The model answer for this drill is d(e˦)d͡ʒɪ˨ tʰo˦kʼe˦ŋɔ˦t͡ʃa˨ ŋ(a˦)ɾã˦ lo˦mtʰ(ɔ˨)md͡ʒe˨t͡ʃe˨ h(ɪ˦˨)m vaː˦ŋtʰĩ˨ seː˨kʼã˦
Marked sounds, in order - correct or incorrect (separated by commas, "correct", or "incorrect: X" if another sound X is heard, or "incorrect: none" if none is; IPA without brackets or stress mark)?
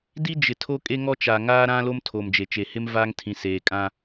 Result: incorrect: i˦, incorrect: aː˦, incorrect: o˨, incorrect: ɪ˦